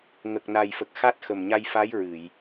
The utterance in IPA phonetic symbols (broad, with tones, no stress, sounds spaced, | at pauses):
ŋ ə˨˩ k̚ n a˨˩ j f ə˨˩ k̚ x a˦˥ t̚ x ə˨˩ m ɲ a˧ j f a˧˥ j ɹ ɨ˨˩˨ j